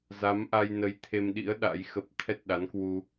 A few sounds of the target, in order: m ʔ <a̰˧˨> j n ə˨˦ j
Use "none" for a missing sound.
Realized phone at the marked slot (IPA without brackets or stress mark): a˧